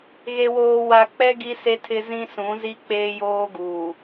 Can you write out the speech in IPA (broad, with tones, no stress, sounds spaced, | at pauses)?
ɣ e˨ w oː˨ w a˨ k͡p ɛ˦ ɡ i˦ s e˦ tʰ ɪ˦ z ĩ˦ s ũ˨˦ z i˦ k͡p eː˦ j oː˦ ɡ uː˨